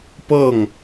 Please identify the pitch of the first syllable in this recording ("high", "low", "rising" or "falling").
falling